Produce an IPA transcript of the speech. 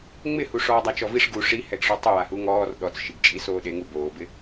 ŋ͡m ɪ h u ʂ ɔː dˤ a t͡ʃ ɔ v i ʂ ɡ u ʂ i h ɛ ɡ ʂ ɔ tˤ ʊ w a h u ŋ ɔː r ɗ ɔ t͡s ʃ i ɡ t͡ʃʼ i s oː ɗ e ŋ u b oː b ɪ

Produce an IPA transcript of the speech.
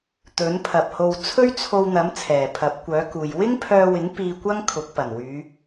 t̪ ɵ˨˥ n pʰ ɐ˨ p̚ h o˧ w t͡sʰ ɵ˥ ɥ t͡sʰ o˧ w n̪ ɐ˨˥ m t͡sʰ ɛː˨˩ pʰ ɐ˨˥ p̚ kʷ œː˨˥ k uː˨ j w ɪ˥ ŋ pʰ œː˧ w ɪ˨˥ ŋ p iː˧ kʷ ɐ˥ ŋ kʰ ʊ˨˥ k̚ p ɐ˨˩ n w yː˨˧

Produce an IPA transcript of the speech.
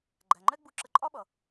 ɡ͡ǃ æ˨ ŋ͡ǃ ɛ˦ ɡ͡b u˧ ǁ ə˧ ǃʼ ɒ˦ ɓ ʌ˨

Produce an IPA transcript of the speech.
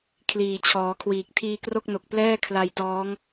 kʰ l iː˨˩ t͡ɕʰ ɔː˩˦ kʰ w iː˨˩ k̚ tʰ iː˧ k r o˥˩ k̚ n o˨˩ k̚ p l ɛː˥˩ kʰ l a˧ j t ɔː˦˥ ŋ

